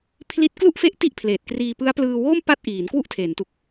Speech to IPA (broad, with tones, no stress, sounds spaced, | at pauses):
pʰ l i˦˥ t̚ k l u˥˩ ʔ f e˦˥ ʔ t i˥˩ ʔ pʰ l eː˨˩ t̚ k r iː˧ p ɯ˦˥ a̯ p l ɯː˧ w oː˥˩ m p a˥˩ t̚ ʔ iː˩˦ n k w u˥˩ ʔ tʰ eː˩˦ n t u˨˩ k̚